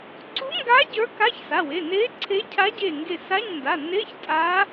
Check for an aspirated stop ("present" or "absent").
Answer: present